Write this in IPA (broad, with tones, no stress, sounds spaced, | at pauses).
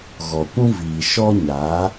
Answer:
ɣ ɔ˨ kʷ ũ˦ v iː˨ ʃ ɔ˦ ɲ aː˨˦